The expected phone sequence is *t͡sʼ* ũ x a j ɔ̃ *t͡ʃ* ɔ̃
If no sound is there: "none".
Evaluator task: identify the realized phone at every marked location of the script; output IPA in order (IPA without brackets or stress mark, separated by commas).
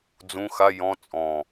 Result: d͡z, t͡sʼ